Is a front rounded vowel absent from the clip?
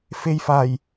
yes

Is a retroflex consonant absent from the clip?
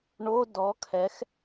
no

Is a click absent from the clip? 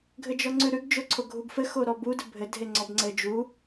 no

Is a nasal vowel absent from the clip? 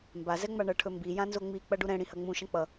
no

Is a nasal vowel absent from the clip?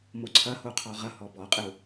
yes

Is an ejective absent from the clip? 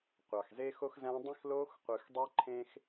yes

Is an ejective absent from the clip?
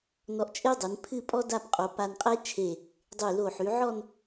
no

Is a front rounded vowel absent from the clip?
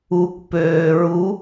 no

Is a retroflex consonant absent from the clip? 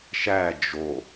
yes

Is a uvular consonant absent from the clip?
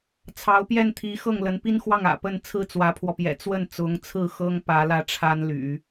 yes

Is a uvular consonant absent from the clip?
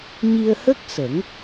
yes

